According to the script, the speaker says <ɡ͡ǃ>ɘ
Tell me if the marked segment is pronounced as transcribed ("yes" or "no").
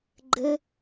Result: yes